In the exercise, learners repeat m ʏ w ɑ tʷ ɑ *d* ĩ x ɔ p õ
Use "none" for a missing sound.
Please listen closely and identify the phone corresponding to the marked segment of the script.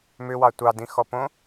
d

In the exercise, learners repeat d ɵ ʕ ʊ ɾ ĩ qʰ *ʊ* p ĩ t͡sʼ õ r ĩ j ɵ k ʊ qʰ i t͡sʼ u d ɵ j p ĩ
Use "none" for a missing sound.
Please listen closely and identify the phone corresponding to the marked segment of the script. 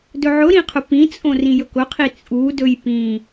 ʊ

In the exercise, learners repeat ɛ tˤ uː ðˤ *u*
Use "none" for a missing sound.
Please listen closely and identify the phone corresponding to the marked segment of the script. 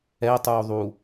u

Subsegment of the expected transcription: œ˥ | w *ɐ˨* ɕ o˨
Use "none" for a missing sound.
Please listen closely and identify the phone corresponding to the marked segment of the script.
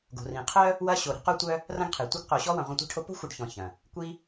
ɐ˥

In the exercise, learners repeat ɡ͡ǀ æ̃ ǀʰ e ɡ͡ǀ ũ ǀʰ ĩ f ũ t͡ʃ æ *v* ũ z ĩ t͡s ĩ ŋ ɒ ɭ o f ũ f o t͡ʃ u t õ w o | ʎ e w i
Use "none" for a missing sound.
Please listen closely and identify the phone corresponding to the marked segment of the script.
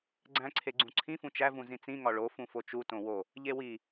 v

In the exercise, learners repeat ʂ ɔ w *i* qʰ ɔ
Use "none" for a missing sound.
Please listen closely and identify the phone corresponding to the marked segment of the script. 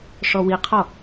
i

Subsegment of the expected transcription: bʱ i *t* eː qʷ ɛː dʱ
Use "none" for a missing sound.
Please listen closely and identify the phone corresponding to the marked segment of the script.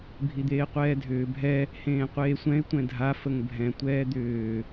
d̪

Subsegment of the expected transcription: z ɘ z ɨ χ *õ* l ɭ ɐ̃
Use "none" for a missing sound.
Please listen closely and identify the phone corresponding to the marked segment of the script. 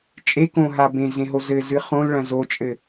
õ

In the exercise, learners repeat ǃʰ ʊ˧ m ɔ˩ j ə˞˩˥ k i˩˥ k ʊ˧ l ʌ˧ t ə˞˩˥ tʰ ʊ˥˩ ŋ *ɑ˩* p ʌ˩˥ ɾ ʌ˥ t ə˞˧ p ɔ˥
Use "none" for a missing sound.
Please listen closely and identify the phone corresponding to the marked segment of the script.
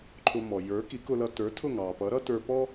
ɑ˩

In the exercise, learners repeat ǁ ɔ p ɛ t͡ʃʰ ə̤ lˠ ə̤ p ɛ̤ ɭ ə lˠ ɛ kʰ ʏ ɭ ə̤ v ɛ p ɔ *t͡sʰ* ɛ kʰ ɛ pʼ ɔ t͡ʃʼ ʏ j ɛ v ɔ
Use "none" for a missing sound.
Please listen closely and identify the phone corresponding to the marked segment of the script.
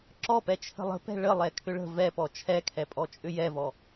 t͡ʃʰ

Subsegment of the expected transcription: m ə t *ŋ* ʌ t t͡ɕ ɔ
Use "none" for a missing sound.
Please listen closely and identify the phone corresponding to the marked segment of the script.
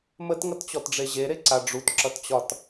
ŋ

